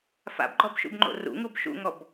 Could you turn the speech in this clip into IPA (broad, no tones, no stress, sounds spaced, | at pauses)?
f a̰ b ɡ͡ǃ ɔ b ʃ ṵ b ŋ͡ǃ o̰ r ṵ ŋ u b ʃ ṵ ŋ ɔ b